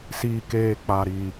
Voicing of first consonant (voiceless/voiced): voiceless